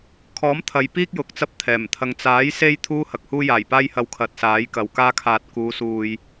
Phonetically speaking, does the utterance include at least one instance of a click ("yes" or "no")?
no